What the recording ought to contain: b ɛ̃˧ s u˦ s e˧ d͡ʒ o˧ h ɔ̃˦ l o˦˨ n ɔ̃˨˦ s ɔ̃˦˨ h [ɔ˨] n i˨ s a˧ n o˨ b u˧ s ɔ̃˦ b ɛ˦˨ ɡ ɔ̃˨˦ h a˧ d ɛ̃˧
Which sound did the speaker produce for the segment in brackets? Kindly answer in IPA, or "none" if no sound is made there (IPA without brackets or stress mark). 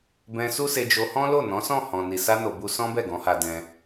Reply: ɔ̃˨